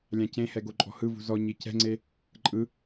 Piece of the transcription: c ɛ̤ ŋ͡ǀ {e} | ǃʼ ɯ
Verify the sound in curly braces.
correct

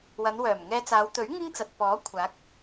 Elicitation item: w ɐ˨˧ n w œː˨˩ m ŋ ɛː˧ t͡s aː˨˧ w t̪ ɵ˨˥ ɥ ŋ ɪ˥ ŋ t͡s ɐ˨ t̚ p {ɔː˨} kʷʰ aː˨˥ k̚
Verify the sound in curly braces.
incorrect: ɔː˨˥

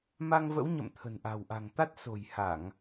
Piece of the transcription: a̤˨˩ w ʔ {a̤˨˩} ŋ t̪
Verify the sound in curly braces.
correct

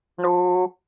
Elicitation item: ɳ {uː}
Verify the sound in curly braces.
correct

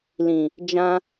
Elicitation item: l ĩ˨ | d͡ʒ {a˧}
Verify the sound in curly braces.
incorrect: ã˧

